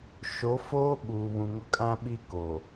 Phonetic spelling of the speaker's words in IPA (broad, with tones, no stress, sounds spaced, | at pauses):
ʃ o˨˦ f oː˦ ɓ uː˨ β ũ˨ ŋ ʊ˦ kʼ ã˦ ɓ i˦ k o˨